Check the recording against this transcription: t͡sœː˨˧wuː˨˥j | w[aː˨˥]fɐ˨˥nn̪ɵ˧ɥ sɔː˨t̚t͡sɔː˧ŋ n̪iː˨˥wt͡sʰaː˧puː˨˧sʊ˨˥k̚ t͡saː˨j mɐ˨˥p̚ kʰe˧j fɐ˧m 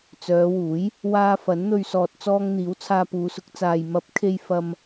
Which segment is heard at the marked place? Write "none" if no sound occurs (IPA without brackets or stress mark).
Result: aː˧